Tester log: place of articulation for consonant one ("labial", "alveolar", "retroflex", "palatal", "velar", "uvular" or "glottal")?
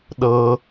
alveolar